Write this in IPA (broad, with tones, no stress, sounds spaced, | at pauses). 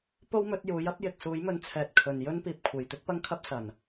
p o˥ w m ɵ˨˥ t̚ j uː˨˥ j ɐ˥ p̚ j ɪ˨ k̚ s uː˨˥ j m ɵ˧ n t͡sʰ ɛː˨ t̚ kʰ ɵ˨ n j ɵ˥ n p iː˨ p̚ kʷʰ e˨˩ j t̪ ɪ˥ k̚ p ɐ˥ ŋ kʰ ɐ˥ p̚ s ɐ˨˩ n